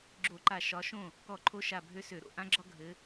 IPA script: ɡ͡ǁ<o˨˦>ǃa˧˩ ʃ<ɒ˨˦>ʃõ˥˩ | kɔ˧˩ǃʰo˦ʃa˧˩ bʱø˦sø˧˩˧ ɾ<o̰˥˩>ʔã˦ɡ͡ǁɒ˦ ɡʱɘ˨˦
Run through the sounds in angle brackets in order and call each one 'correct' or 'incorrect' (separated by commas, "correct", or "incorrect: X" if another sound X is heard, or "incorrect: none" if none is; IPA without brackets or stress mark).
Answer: incorrect: o˧˩˧, correct, correct